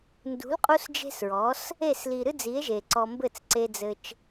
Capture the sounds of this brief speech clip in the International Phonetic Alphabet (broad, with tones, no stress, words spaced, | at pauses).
ndṳ˨˦l qʼu˦sd͡ʒe̤˦sɹɔ˨˦s | e˦˨sli˨ɾɨ˦d͡zi˨˦e̯ ʒe˧ǀɔ˦ mbɘ˦˨t͡sǀe˧d͡zɘ˧t͡ʃ